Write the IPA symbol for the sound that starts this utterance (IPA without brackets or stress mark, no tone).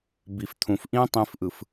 b